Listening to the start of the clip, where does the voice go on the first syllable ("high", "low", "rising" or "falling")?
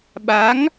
rising